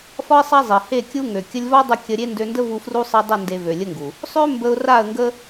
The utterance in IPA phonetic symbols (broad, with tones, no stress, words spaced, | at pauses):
fɒ˦ɪ̯sˤa˦ zˤi˨ he˦˨kʲu˦ ŋø˨ kʲə˧lʲvɒ˦dˤə˧ kʲə˧ɾʲe˦ ndø˧ndə˦ vu˧fru˦sˤi˧ dˤə˦˨ nde˧vø˨lʲə˦ŋɡu˨ | sˤø˦ mbə˧ʊ̯ra˦˨ə̯ŋɡə˦